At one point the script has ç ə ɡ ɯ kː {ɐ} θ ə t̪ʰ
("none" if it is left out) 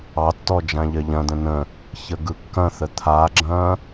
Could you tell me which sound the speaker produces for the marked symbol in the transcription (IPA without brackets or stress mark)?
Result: ɐ̃